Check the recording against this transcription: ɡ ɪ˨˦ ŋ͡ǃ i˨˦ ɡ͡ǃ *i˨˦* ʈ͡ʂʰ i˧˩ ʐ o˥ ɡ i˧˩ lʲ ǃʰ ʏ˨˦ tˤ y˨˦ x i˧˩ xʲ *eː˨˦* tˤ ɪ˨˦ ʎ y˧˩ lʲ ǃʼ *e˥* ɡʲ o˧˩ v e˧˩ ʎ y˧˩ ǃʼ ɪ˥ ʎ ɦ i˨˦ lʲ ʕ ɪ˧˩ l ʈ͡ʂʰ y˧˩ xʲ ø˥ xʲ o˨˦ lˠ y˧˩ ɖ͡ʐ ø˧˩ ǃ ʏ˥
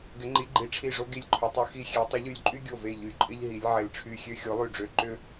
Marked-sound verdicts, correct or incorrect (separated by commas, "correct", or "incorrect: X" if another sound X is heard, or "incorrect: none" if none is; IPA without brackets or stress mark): correct, incorrect: e˨˦, incorrect: y˥